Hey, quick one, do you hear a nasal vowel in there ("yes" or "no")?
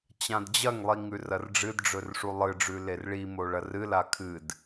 yes